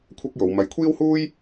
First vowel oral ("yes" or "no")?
yes